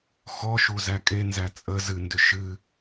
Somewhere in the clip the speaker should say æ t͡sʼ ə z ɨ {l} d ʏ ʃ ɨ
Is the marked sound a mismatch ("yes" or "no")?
yes